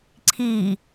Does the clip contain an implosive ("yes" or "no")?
no